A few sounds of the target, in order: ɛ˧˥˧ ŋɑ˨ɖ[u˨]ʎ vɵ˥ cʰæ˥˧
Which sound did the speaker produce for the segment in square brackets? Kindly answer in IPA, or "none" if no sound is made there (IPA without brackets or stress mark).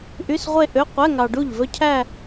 u˥˩